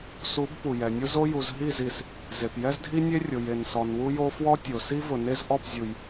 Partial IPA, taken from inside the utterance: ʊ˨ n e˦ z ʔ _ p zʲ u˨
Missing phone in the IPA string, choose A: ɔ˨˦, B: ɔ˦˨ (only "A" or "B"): B